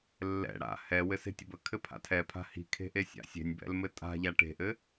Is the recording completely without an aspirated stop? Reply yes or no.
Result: no